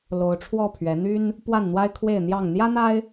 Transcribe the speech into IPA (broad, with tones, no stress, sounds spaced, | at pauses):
l o˨˦ ʊ̯ ʈ͡ʂʰ w ɔ˥˨ pʰ ɥ ɛ˨˦ n̪ y˦ n | p w a˥˨ n n̪ w a˦ ɪ̯ kʰ w e˥˨ ɪ̯ n̪ j ɑ˥˨ ŋ n̪ j ä˦ n̪ a˦ ɪ̯